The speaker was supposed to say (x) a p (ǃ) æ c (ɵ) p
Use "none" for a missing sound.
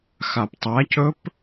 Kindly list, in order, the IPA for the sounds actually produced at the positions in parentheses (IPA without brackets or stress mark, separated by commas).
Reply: x, tˤ, ɵ